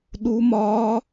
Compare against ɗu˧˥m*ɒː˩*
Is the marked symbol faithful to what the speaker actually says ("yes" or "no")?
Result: no